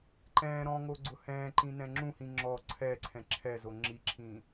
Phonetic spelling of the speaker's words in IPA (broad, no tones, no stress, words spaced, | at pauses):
ǃɛ̃ː ɾɔ̃ŋoɡ͡ǀʊ hɛ̃ːǃĩnɛ̃ ŋ͡ǁũhĩ ŋ͡ǁɔ ǀʰɛǀʰɛ̃ ǁʰɛzo ŋ͡ǁiǁʰĩ